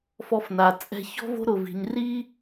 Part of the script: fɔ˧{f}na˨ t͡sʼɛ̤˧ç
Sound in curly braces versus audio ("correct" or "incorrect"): correct